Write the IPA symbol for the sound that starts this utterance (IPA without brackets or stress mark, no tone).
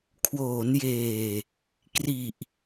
kʰ